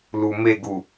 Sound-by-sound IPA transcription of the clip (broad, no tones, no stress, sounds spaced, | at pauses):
l u m e ɡ u